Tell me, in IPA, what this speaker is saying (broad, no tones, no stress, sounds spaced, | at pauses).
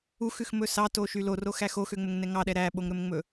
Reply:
u x ʉ x m ɵ s ɑ t o ʃ y l o r o x æ x o x ø ŋ͡m ɵ ŋ n ɛ ŋ ɑ ɗ ɛ ɾ æ ɓ o ŋ ɾ ɵ m ŋ͡m ɵ